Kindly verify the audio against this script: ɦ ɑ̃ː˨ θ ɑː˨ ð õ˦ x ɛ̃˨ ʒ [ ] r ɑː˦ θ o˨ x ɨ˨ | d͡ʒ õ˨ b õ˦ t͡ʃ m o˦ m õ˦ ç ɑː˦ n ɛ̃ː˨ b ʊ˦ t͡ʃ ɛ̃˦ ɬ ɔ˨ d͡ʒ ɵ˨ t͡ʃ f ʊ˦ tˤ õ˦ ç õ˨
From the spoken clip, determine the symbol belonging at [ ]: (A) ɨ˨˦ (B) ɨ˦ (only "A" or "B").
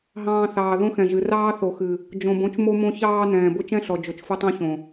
A